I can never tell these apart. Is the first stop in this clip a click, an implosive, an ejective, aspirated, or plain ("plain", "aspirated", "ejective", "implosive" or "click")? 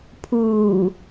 aspirated